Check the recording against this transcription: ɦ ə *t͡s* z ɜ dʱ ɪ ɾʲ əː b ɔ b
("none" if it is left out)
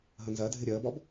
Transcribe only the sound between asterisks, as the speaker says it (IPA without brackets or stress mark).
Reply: n